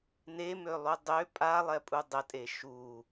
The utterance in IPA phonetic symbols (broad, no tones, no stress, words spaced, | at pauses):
nemølˠu dˤø pʼalˠɛpʼu dˤətʼe ʃu